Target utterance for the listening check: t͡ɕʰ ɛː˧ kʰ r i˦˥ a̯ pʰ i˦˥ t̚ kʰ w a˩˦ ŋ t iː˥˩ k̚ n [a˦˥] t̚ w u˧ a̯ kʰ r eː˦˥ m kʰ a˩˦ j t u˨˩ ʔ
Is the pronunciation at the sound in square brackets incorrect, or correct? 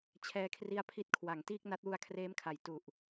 correct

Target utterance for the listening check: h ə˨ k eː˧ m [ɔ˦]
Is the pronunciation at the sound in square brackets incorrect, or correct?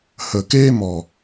incorrect: ɔ˨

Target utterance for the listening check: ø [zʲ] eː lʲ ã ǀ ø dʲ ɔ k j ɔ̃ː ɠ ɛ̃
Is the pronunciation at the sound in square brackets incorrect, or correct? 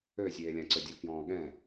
correct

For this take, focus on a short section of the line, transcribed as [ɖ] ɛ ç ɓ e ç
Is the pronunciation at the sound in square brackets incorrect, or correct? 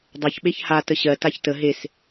incorrect: dˤ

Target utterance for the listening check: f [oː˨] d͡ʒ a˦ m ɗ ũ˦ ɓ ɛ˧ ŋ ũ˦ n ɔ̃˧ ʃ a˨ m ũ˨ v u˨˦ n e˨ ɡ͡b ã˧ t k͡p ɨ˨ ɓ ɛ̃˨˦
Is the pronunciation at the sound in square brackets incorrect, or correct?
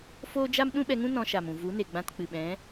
incorrect: oː˦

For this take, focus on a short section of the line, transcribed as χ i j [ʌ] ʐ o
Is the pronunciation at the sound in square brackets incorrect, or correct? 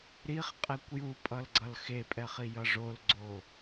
correct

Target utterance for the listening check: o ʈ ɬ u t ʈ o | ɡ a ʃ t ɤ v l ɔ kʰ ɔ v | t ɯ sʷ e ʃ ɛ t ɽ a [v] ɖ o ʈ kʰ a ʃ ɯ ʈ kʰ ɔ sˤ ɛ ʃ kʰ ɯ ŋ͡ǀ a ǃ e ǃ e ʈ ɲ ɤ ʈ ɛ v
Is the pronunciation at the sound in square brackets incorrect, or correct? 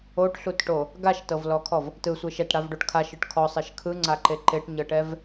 correct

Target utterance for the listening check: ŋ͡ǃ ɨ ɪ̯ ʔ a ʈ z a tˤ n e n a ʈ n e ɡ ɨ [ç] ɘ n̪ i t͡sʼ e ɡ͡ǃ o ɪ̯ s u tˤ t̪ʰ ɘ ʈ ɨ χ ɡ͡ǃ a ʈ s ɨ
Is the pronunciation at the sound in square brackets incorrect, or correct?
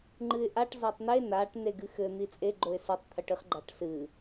incorrect: x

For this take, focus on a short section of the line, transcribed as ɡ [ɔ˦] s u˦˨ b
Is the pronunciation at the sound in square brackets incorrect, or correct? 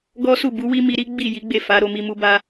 correct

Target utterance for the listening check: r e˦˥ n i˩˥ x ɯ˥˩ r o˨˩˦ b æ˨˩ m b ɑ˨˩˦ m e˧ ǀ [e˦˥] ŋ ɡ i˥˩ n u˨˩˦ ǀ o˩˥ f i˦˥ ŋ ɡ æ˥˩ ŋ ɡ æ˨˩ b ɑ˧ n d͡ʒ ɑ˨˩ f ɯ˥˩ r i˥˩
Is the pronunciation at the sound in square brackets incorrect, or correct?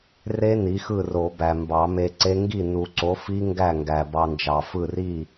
correct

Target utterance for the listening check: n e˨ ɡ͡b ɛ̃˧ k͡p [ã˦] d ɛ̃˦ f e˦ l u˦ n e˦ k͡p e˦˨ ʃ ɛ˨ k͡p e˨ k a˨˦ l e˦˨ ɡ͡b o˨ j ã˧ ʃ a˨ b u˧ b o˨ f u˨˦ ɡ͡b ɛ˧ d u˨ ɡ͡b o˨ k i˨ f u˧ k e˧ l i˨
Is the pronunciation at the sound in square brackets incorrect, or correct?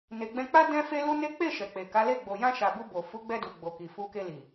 incorrect: a˦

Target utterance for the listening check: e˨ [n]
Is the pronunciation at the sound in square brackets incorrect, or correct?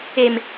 incorrect: m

